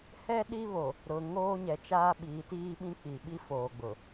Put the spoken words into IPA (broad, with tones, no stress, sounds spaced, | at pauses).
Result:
h ɛ˦ ɗ i˦ β o˨ | ɾ ʊ˨ ŋ oː˦ ɲ ɛ˨ t͡ʃ aː˦ ɓ iː˨˦ t iː˦ ɓ ĩ˦ k͡p i˨ ɓ i˦ f oː˨ ɡ͡b ʊ˨